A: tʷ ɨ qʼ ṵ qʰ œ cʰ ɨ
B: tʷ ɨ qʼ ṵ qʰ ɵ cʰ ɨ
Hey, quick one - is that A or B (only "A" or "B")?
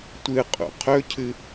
B